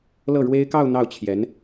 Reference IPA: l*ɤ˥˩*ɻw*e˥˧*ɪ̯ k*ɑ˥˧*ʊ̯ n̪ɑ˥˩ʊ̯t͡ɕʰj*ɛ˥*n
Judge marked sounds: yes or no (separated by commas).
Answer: yes, no, yes, no